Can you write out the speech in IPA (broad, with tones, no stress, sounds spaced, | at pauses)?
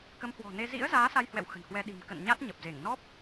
k ə˨˦ m h w ɔ̤˨˩ n e˧ z ḭ˧˥ ə̯ z aː˨˦ s a˧ j h w ɛ̰˧˨ w x ə̤˨˩ n h w ɛ˧ ɗ i̤˨˩ m k ə̰˧˨ n ɲ a˦˥ t̚ ɲ ə˨˩ p̚ z e˧˩ ŋ n ɔ˦˥ p̚